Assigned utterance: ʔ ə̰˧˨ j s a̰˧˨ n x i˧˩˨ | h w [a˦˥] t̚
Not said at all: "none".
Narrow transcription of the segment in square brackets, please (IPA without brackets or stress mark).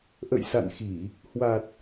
a˨˩